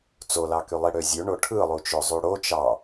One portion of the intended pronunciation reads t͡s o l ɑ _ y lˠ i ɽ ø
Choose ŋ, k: k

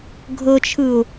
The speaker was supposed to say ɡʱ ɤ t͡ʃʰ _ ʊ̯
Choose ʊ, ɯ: ɯ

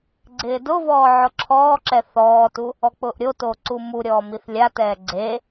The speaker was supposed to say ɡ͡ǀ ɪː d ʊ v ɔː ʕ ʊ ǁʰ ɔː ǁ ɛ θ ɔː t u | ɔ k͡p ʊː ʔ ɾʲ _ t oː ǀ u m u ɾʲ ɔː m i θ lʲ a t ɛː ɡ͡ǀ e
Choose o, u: o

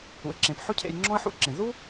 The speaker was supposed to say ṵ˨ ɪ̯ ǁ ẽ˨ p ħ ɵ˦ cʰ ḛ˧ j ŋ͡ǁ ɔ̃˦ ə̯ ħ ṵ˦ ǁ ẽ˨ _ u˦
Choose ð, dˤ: ð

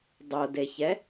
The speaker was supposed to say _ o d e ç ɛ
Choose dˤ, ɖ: dˤ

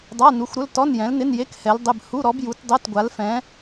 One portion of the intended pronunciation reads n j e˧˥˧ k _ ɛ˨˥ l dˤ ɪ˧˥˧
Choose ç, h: h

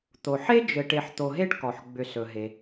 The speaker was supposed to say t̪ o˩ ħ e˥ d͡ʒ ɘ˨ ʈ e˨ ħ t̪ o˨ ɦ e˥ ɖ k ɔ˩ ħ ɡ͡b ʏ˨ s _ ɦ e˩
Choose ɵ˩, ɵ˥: ɵ˩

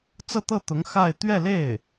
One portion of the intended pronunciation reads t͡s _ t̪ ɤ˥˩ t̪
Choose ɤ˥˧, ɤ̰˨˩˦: ɤ˥˧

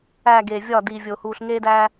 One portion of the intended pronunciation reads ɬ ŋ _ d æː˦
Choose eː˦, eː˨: eː˦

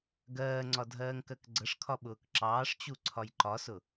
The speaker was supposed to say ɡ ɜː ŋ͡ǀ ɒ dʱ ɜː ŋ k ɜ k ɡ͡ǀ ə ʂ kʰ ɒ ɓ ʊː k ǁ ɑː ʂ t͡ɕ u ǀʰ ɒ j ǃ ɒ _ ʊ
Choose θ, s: s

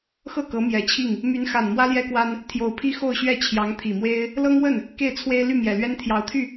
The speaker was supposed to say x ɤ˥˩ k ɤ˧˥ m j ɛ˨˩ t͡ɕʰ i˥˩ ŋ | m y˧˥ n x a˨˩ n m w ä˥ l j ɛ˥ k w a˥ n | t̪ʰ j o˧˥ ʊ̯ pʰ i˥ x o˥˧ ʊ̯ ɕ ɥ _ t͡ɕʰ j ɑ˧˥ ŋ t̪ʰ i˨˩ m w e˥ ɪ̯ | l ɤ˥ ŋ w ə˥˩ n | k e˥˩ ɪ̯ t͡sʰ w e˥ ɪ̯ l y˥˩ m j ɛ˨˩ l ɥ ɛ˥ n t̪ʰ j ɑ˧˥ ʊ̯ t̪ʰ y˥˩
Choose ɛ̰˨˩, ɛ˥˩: ɛ˥˩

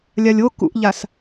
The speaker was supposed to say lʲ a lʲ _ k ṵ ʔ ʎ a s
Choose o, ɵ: o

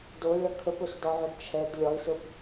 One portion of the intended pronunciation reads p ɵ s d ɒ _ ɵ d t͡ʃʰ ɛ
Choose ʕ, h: ʕ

